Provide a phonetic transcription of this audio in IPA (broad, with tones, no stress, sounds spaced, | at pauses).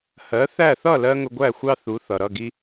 h ɜ˩˥ θ æ˥˩ θ ʌ˥˩ l ɜ˧ ŋ ʊ˧ ɡʷ æ˥˩ xʷ ɑ˥ θ u˩˥ θ ʌ˩ ɾ ʌ˥˩ ɡ i˧